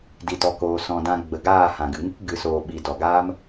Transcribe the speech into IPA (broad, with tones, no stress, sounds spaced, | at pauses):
d i˨ t ɔ˨ k oː˨ s ɔ̃˨ d ã˧ ɡ͡b ə˨ ɡ aː˦˨ h ã˨ ɡ ɨ˨ ŋ ɨ˦ k ɡ ɨ˨˦ s oː˧ ɓ i˧ d ɔ˨ ɡ aː˦ m